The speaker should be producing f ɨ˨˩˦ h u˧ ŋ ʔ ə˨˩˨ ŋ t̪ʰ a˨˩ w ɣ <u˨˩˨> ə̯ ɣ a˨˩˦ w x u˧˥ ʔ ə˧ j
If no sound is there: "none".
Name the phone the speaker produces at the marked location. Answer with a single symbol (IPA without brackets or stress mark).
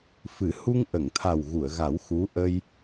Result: u˨˩˨